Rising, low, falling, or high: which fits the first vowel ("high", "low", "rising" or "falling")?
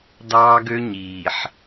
high